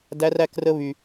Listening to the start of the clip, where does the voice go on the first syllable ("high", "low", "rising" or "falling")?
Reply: high